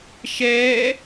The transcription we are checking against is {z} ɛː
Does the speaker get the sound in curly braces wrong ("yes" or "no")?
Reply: yes